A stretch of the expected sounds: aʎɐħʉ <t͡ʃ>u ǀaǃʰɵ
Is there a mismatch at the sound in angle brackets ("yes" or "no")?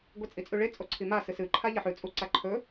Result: yes